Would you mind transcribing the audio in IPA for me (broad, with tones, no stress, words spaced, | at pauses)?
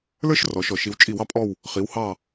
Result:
lə˞˥ʃrɔ˩˧ʃɔ˧˩˧ʃ i˩˧wt͡ʃʼi˧˩˧wɑ˩˧pʼɔ˦˨w | χi˩˧w hɑ˦˨